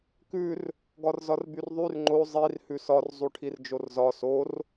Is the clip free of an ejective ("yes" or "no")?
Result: yes